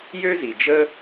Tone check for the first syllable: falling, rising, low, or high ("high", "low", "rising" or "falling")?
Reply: high